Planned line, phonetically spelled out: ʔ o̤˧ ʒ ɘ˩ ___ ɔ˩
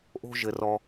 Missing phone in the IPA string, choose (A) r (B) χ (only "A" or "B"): A